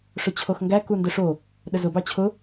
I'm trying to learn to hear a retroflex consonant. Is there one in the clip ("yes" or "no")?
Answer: yes